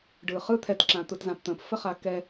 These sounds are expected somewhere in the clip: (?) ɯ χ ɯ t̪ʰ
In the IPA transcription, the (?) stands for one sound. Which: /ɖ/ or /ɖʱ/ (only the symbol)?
ɖ